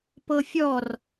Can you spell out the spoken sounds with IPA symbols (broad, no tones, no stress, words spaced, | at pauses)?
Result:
pɤfʲɔr